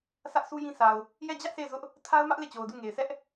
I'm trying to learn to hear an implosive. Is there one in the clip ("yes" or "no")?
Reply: no